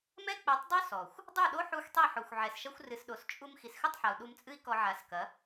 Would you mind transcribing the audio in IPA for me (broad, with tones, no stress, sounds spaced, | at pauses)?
m ɛ˦ k͡p ɛ˨˦ tˤ dˤ o˦ s ɔ˨ xʷ | dˤ u˦˨ ɗ o˦ ħ u˧ xʷ tˤ i˦˨ ħ o˨ xʷ ʕ ɛ˨ s ʃ ɐ˦ xʷ r ɨ˨ s ɗ o˨ s t͡ʃʼ u˧ m x i˨ s x ɘ˦˨ tˤ ħ a˨ u̯ ɗ u˧ m t͡sʼ ɨ˦ i̯ k ɔ˧ ʕ a˨˦ s k ɐ˨˦